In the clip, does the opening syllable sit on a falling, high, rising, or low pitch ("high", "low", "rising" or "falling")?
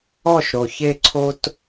falling